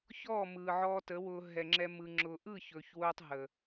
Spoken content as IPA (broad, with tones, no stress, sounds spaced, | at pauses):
ç ɔː˦˨ m ɯː˨ ʕ ɔː˧ t ə˨˦ w ʊː˧ ɦ ɛ˨ ŋ͡ǁ ɛ˧ m ɯ˧ ŋ͡ǁ ʊː˨ ʔ ɯː˦˨ ç ɵː˨ ç w ʊː˧ tˤ ɦ ə˨